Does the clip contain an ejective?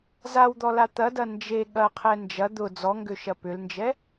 no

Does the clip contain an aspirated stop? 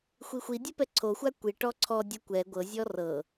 yes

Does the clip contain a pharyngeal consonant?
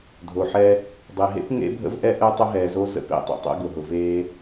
yes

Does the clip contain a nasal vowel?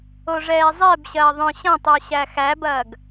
yes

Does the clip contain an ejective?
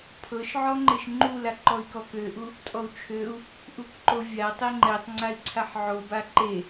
yes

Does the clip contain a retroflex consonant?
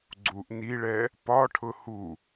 yes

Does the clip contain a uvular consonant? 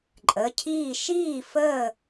no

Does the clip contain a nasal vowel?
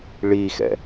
no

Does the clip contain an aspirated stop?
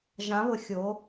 no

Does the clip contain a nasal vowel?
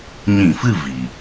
yes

